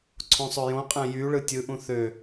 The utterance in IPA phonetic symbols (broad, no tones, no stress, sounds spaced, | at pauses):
ǀʰ õ sˤ ø j õ qʼ æ̃ j y ɭ ɯ tʲ ɯ ʔ ũ θ ø